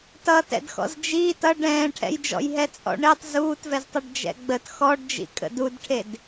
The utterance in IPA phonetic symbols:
t ʌː t ɛ̰ d x ɔ̰ z d͡ʒ iː t ʌ ɖ ɛ̃ː ʈʰ ɛ̰ j d͡ʒ ɔ̰ j ɦ ɛ t͡sʼ ɔ̰ ɳ e tˤ z uː t v ɛ z tˤ ʌ ɖ d͡ʒ ɛ̰ ɡ͡b ə t x ɔ ɖ d͡ʒ ḭ kʼ ə̰ d u d ʈʰ e d

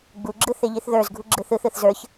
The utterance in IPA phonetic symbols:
ɡ͡b u ɡ͡ǁ ɯ θ e ʎ i θ ð ə˞ z ɡʱ u ɡ͡ǁ ɯ θ ɯ θ ɯ θ z ə˞ ç

